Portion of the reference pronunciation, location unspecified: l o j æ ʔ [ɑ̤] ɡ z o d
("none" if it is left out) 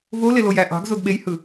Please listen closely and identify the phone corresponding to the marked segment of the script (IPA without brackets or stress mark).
ɑ̤